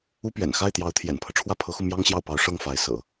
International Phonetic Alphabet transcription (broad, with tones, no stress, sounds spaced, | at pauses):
u˥ p ɥ ɛ̰˨˩ n x a˥˩ ɪ̯ t̪ j ɑ˧˥ ʊ̯ t̪ʰ j ɛ̰˨˩ n pʰ ɤ˦ ʈ͡ʂʰ w ä˥˩ pʰ ɤ˧˥ x u˧ m j ɑ˥ ŋ ɕ j ɑ˥˩ ʊ̯ p ɑ˧˥ ʊ̯ ʂ ɤ˥˩ ŋ f a˧˥ ɪ̯ s ɤ̰˨˩˦